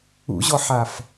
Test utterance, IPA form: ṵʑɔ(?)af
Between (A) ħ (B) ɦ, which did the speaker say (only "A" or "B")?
A